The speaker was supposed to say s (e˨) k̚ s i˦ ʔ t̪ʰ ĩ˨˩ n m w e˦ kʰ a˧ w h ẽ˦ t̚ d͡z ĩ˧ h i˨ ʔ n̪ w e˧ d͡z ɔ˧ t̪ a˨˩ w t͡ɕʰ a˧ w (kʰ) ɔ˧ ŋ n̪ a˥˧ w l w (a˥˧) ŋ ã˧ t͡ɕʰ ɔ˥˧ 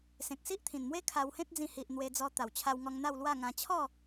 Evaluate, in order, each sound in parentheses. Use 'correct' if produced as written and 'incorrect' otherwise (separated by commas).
incorrect, incorrect, correct